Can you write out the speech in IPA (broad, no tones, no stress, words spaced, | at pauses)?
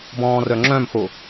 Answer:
bɔ̃ːrœŋ͡ǁœ̃mxo